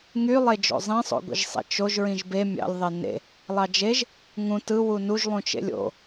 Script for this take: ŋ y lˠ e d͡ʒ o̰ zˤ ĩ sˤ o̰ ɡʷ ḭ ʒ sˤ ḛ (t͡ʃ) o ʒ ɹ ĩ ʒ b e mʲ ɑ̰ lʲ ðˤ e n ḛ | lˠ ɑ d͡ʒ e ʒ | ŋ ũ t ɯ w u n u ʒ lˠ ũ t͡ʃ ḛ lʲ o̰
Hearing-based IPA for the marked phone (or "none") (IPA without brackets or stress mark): t͡ʃ